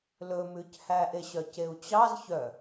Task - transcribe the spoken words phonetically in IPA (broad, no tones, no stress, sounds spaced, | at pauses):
l ɵ m ʉ c h æ ʔ e ɕ œ c e u̯ t͡ɕ ɑ z ç œ